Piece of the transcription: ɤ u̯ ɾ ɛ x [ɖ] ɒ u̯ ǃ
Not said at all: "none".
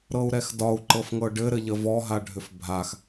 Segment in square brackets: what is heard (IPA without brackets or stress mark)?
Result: d